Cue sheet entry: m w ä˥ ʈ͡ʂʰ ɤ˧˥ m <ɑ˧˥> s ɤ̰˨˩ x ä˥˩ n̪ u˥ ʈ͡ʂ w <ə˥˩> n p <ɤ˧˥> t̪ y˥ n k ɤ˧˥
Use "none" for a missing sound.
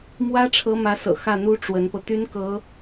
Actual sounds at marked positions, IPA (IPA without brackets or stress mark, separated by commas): ä˧˥, ə˧˥, ɤ˧